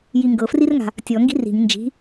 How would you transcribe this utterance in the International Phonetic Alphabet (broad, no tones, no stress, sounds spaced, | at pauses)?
j i ŋ ɡ ɤ f r i r ŋ a̤ | tʲ ɔ ŋ ɡ i̤ r i̤ ŋ n d͡ʒ i̤